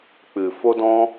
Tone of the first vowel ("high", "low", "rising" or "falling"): low